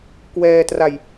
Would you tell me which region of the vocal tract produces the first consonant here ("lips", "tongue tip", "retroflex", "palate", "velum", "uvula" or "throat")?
velum